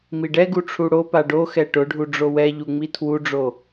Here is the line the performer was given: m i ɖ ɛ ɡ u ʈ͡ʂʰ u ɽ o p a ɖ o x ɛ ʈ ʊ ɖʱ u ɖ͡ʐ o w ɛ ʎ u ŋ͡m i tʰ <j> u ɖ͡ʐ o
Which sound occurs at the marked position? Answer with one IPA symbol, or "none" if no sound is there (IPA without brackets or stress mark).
w